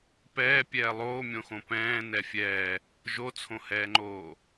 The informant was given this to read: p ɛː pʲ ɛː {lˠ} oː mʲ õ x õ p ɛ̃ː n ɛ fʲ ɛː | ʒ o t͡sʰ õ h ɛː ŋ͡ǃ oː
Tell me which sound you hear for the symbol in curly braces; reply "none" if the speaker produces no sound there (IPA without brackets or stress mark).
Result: lˠ